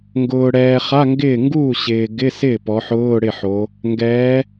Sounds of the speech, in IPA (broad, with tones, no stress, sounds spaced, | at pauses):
ŋ ɡ ʊː˩ ɽ ɛː˩ χ a˧˥˧ ŋ ɡ ɪː˥˩ ŋ ɡ uː˥˩ ɕ ɪː˩ ɡ ɪ˧˥˧ s ɪː˥˩ p ɔ˩˧ ħ ʊː˧˥˧ ɽ ɪ˥˩ ħ o˩˧ | ŋ ɡ ɛː˩˧